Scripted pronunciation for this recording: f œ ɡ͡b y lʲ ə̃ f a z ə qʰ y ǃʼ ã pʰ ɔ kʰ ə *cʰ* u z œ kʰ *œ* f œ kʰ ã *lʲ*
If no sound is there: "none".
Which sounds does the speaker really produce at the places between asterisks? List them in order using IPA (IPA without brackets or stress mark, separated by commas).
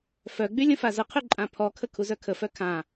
kʰ, ə, none